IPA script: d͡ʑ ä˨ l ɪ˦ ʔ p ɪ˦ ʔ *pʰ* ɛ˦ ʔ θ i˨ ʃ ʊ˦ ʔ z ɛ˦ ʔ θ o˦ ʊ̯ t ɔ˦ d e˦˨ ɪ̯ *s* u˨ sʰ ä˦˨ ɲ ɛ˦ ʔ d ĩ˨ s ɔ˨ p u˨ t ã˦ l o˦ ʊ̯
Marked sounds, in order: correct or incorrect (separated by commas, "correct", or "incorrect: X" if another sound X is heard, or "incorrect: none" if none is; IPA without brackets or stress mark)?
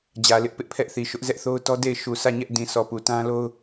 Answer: correct, incorrect: ʃ